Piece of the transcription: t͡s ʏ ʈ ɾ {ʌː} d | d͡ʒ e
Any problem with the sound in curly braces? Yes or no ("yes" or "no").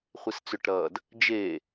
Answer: no